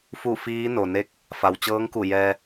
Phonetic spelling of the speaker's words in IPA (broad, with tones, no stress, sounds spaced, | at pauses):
f u˥˨ f iː˧˥ n o˩ n e˧˥ k̚ | f a˩ w t͡ɕ ɤː˧˥ ŋ k u˧˩ j ɛː˧